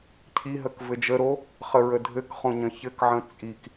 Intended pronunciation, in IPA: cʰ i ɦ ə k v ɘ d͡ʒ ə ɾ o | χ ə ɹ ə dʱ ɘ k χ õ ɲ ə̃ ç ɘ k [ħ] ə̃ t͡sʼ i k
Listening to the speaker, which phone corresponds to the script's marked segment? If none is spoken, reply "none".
ʕ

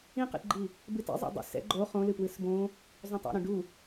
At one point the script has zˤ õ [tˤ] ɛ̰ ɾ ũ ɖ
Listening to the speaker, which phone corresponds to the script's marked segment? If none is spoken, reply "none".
tˤ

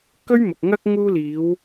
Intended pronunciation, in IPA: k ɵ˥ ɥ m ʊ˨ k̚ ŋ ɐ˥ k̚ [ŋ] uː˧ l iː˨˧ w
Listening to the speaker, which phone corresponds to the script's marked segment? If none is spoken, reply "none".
ŋ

